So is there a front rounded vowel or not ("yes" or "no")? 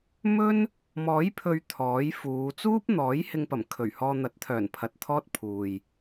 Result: yes